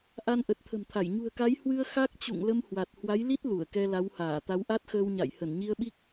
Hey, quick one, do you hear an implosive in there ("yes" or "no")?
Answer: yes